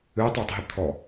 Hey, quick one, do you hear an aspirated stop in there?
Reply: yes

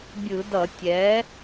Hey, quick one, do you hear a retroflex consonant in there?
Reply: no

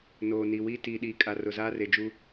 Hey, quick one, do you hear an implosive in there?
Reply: yes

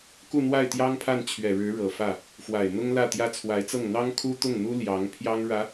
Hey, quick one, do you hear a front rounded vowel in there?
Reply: no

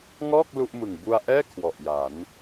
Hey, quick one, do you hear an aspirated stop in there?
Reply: yes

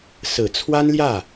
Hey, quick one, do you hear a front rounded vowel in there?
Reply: no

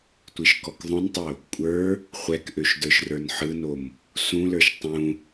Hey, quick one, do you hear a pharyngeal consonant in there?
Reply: yes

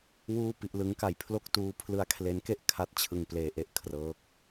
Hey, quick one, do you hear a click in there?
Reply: no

